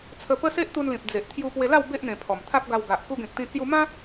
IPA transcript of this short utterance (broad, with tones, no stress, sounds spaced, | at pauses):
t͡sʰ ə˧ p ə˦ s e˦ ʔ t̪ u˧ n l ĩ˨ p̚ d͡z e˨ ʔ t̪ʰ j u˧ p w e˧ l a˥˧ w b e˦ ʔ n̪ ẽ˨˩ pʰ ɔ˨˩ m t̪ʰ a˦ p̚ ɡ a˧ w ɡ a˨ ʔ k u˧ ɡ ẽ˨ k̚ t̪ ĩ˧ t͡s j u˧ m ã˦